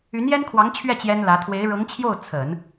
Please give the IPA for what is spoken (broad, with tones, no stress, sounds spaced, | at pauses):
y˧˥ n j ɛ˥ n kʰ w ɑ˧˥ ŋ t͡ɕʰ ɥ ɛ˥˩ t͡ɕ j ɛ˥ n l ä˧˥ t̪ʰ w e˧˥ ɪ̯ ɻ ɤ˧˥ ŋ t͡ɕʰ j o˥˩ ʊ̯ t͡sʰ ə˨˩˦ n